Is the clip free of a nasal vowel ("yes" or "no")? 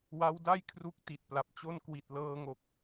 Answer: yes